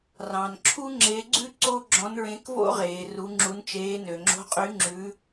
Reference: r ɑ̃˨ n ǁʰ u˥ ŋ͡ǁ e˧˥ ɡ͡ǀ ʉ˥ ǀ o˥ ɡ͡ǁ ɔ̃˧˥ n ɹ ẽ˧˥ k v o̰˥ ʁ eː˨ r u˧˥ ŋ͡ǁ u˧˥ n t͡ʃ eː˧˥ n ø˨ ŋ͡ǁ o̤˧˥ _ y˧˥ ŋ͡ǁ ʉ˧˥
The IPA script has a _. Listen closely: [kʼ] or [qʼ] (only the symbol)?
qʼ